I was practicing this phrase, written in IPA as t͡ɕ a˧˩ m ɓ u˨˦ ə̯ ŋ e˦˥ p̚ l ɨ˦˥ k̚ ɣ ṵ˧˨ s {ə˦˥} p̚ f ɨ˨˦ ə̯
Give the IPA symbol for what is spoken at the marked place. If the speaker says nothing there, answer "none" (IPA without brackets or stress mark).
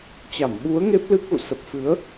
ə˨˩